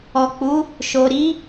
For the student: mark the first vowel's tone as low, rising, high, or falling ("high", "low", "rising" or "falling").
low